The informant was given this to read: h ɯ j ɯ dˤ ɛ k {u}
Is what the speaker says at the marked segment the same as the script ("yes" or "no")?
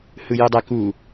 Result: yes